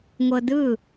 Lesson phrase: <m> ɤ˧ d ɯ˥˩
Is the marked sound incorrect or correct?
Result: incorrect: ŋʷ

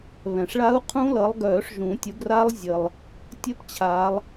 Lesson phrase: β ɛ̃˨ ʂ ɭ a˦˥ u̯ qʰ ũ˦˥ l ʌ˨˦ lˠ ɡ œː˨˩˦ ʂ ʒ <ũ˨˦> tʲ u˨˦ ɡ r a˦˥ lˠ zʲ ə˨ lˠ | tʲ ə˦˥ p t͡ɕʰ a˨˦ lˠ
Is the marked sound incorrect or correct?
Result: incorrect: ũ˨˩˦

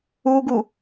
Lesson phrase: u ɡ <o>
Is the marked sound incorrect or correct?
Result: incorrect: u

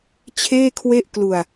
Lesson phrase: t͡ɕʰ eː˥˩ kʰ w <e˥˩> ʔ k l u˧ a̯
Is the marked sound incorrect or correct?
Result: correct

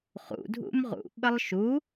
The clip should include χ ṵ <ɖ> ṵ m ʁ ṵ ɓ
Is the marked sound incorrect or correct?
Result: incorrect: dʱ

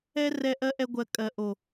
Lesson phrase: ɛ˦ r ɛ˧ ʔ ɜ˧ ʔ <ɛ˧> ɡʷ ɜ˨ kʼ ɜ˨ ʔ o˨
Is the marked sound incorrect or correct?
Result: correct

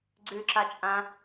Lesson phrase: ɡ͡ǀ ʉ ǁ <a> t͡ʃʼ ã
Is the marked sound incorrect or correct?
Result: correct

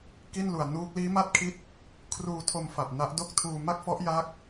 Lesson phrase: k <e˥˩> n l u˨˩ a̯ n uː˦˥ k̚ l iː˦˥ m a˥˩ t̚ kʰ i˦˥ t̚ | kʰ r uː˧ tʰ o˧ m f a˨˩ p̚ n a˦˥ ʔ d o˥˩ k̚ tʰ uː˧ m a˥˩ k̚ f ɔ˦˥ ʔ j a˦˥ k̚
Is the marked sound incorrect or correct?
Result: incorrect: i˥˩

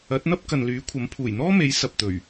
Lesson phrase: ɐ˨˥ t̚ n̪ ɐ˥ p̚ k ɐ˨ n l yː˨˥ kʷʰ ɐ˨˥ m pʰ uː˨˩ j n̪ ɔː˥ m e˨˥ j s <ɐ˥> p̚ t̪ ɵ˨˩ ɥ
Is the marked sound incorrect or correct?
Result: incorrect: ɐ˨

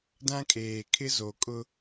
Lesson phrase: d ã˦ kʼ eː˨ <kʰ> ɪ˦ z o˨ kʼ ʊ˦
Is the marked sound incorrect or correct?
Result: correct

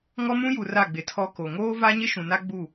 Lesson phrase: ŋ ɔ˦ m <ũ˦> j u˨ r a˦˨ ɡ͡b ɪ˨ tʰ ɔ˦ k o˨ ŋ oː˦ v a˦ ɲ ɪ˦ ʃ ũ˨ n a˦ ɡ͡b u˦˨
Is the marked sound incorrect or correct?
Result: correct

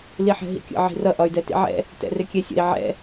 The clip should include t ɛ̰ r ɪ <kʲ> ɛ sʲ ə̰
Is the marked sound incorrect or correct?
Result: correct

